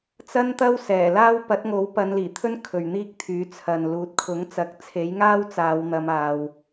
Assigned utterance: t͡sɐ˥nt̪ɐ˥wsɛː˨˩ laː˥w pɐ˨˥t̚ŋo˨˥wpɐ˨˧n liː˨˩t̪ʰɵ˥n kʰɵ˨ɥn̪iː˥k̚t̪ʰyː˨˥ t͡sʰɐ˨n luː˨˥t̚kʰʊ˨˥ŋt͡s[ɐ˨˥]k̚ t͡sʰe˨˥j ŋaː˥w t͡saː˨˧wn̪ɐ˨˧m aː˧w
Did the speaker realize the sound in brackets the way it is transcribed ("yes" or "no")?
yes